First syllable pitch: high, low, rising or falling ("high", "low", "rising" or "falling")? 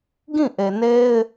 falling